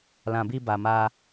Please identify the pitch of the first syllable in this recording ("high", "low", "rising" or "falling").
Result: low